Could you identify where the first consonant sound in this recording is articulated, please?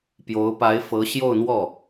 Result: labial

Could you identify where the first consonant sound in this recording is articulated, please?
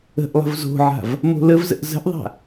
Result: glottal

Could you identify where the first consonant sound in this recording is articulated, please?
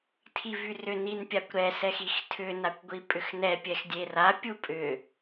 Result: alveolar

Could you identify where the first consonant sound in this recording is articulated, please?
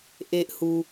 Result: glottal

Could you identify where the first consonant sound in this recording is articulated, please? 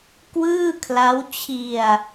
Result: velar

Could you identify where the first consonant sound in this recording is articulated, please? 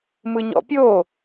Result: labial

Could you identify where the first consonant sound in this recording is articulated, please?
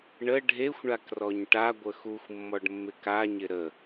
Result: retroflex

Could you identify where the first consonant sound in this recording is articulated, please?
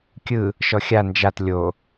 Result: velar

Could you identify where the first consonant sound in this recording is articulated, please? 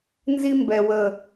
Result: alveolar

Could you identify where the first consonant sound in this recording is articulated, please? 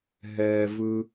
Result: glottal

